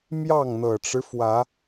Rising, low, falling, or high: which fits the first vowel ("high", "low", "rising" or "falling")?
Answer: falling